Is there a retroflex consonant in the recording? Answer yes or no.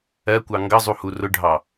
yes